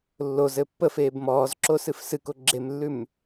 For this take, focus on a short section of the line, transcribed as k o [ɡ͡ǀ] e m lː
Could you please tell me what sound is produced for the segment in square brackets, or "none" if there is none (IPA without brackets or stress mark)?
ɡ͡ǁ